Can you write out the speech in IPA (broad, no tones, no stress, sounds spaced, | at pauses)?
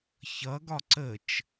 ç ʌ ɡ ɒ ǀ ə t͡ʃ